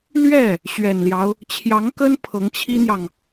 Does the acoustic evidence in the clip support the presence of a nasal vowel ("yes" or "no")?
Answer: no